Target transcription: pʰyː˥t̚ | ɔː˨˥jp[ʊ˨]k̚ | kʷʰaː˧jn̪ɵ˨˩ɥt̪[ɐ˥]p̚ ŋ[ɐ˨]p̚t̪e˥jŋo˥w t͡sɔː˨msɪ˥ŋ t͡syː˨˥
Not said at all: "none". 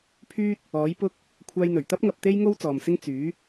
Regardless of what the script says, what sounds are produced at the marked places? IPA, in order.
ʊ˥, ɐ˥, ɐ˧

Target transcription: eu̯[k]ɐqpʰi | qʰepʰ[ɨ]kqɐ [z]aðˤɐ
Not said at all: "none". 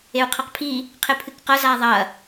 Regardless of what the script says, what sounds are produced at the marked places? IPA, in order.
qʰ, ɨ, z

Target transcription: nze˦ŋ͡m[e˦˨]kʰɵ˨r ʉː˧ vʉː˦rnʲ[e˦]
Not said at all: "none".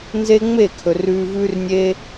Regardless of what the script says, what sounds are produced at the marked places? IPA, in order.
e˦˨, e˦

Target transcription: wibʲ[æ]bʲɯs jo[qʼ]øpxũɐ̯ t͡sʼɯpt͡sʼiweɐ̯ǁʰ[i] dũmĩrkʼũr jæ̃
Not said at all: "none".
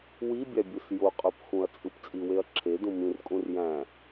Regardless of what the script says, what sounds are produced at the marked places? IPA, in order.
æ, qʼ, e

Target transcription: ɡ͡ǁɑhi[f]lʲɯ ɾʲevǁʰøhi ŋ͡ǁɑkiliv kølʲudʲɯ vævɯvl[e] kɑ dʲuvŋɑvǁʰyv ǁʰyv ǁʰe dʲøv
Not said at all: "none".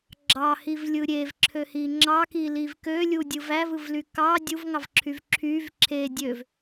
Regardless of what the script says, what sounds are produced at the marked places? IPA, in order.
v, y

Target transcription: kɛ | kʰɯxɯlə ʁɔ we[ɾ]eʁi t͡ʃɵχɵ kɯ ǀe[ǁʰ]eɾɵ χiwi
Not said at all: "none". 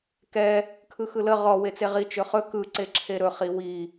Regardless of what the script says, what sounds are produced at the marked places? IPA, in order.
t͡s, ǁʰ

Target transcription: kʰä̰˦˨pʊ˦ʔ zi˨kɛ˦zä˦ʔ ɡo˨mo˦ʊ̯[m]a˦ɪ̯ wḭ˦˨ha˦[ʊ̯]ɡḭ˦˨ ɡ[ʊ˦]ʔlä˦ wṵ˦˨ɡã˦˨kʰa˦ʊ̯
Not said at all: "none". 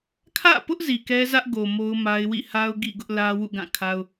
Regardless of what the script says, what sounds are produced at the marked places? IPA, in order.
m, ʊ̯, ʊ˦

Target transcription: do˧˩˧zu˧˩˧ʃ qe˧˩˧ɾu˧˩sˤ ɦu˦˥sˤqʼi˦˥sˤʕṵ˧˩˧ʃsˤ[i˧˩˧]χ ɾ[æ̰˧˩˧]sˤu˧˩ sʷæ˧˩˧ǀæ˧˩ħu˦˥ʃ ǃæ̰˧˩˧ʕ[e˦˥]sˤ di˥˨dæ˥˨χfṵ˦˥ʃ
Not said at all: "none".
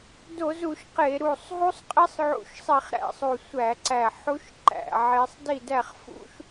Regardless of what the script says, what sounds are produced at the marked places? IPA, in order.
i˧˩˧, æ̰˧˩˧, e˦˥

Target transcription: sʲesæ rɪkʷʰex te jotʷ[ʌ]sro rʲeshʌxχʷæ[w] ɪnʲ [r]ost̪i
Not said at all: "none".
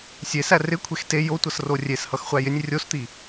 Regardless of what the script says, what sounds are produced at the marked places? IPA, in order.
ʌ, j, rʲ

